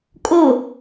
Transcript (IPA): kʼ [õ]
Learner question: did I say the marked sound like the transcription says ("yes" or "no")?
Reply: no